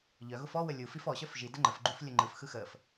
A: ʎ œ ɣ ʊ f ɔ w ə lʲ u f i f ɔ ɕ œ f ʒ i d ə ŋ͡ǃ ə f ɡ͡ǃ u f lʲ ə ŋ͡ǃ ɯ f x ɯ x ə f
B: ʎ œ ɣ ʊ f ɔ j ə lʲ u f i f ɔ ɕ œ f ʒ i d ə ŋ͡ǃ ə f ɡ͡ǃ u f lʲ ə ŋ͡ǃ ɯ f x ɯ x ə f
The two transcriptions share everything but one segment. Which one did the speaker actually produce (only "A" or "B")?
A